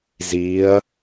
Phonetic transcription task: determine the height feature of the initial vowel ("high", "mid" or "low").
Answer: high